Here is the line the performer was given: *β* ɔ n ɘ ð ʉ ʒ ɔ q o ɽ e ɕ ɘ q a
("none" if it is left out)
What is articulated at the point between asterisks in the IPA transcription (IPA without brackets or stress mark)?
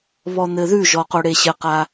β